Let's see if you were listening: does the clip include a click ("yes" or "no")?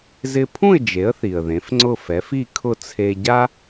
yes